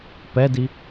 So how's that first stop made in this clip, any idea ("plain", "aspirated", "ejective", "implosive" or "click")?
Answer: plain